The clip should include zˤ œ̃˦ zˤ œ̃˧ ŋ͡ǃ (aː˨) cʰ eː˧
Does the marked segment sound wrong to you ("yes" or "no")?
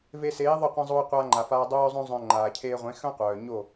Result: no